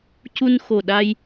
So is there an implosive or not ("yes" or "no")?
yes